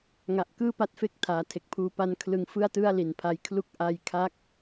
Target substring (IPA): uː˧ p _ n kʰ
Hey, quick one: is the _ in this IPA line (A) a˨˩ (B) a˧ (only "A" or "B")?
B